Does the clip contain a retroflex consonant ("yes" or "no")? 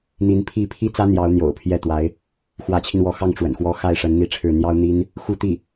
yes